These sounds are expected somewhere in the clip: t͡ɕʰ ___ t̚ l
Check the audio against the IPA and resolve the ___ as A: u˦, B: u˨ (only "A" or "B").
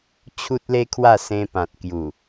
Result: A